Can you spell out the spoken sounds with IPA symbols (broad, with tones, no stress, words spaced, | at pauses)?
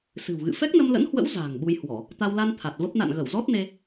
sɨ̤˨˩wɣɨ̰˧˨ fɛ˦˥k̚nə˧mlə̰˧˥nhwə̰˧˥w za̤ː˨˩ŋɓu˧jhwɔ˧˩˨ | t̪a˧w la˧n t̪ʰa˨˩t̚və˦˥p̚ na̰˧˨nɣə˧˩wzɔ˦˥t̚ne˧